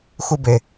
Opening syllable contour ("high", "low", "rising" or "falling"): high